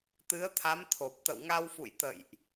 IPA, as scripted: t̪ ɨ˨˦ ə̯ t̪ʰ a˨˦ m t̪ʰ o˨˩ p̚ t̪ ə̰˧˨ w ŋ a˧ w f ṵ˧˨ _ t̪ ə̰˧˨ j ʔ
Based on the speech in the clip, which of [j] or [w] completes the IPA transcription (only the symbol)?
j